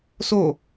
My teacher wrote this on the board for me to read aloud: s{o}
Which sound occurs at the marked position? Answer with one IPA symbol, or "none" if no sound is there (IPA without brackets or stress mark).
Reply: o